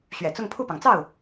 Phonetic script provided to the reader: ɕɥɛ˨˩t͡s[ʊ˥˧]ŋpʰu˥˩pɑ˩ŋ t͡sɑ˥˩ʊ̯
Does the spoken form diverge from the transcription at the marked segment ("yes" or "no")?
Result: no